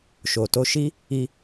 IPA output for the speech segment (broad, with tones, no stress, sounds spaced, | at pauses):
ʃ o˨ t o˧ ʃ i˦ | i˧